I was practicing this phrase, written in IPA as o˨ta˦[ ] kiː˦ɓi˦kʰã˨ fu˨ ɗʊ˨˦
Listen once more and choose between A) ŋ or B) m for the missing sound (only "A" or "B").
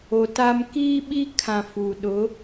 B